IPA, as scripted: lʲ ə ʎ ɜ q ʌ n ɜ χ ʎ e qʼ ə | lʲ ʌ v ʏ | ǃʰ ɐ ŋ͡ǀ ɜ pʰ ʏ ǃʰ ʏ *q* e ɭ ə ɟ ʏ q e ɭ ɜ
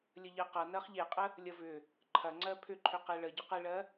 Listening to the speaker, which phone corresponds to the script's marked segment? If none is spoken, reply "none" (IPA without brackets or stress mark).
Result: q